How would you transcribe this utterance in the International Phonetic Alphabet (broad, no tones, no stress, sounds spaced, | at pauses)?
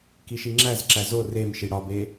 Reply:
k i ʃ i ŋ͡ǁ æ z ǁ æ z o r e m ʃ i ɽ ɒ b e